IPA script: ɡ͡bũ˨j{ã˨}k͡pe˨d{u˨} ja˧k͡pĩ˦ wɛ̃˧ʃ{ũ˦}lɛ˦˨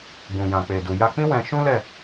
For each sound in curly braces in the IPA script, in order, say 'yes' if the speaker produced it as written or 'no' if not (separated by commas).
yes, yes, yes